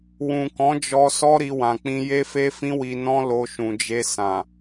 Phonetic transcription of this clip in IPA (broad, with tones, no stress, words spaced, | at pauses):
wũ˨kɔ̃˨˦d͡ʒɔ˧ sɔ˦ɾi˧wã˨ k͡pĩ˧je˦fe˦fĩ˦ wi˧nɔ̃˦lo˧ ʃũ˨d͡ʒe˧ sã˨